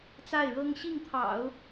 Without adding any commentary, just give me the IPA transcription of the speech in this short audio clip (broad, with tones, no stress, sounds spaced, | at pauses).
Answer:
t͡s a˥˩ ɪ̯ ɻ ɤ˥ ŋ ɕ i˥˩ ŋ t̪ʰ ɑ̰˨˩˦ ʊ̯